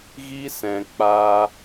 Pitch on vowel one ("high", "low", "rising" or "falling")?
high